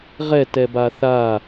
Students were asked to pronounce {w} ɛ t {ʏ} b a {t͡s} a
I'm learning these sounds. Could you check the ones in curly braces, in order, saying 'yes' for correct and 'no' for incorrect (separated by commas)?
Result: no, no, no